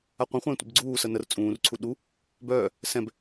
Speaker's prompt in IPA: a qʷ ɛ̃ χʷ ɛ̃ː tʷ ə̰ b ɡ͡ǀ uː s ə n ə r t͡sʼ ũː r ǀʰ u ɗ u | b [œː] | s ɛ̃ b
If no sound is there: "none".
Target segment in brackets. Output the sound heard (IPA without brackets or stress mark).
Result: œː